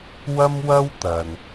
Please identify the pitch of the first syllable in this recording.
high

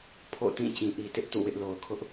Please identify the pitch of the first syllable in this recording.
falling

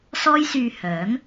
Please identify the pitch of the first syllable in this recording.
high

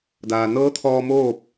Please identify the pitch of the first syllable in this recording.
low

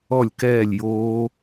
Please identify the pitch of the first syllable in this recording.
falling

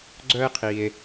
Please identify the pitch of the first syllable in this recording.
high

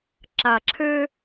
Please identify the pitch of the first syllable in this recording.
low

